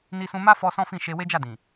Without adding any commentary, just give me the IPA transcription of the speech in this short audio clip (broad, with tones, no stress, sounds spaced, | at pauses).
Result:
n i˧ s ũ˧ m a˦ f ɔ˧ s ɔ̃˦ f ĩ˦˨ ʃ e˧ w e˦ d͡ʒ a˦˨ d ĩ˨